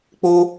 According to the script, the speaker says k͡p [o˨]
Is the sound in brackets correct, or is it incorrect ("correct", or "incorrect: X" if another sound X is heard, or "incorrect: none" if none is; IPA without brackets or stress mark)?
incorrect: o˦